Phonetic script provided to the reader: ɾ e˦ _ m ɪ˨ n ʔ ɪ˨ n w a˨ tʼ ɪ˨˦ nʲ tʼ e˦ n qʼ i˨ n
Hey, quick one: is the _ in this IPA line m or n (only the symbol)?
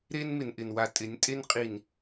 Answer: n